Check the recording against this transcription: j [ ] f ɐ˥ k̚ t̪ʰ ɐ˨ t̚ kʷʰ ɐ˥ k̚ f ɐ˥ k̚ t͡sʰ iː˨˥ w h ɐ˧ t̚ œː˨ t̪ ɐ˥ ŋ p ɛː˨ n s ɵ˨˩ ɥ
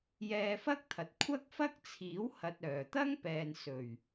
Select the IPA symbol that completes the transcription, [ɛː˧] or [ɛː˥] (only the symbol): ɛː˧